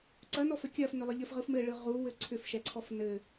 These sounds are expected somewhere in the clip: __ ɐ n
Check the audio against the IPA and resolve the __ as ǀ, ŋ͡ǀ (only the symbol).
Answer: ǀ